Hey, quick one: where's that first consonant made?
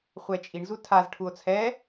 uvula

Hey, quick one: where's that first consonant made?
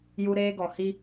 palate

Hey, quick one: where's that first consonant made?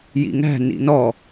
palate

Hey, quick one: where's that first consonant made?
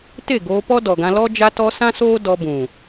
tongue tip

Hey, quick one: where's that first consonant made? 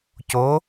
palate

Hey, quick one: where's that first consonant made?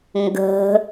velum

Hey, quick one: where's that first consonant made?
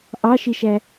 throat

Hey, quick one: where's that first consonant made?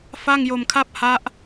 lips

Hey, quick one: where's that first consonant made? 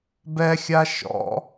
lips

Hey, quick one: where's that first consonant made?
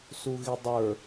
tongue tip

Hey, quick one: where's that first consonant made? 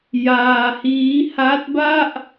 palate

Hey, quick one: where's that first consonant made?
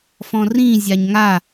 lips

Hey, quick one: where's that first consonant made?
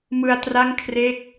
lips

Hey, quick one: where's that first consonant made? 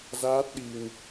tongue tip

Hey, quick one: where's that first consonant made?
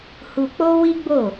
throat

